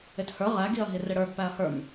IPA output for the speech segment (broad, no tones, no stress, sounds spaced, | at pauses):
ɪ t h ə˞ ʁ æ ɡ i ɐ̯ ɦ i r ɪ ɽ ə˞ ɡ p æ ɐ̯ h ə˞ m